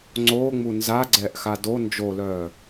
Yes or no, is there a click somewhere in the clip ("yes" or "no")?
yes